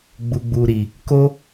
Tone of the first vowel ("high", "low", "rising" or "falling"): low